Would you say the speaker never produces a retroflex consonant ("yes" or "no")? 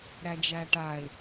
no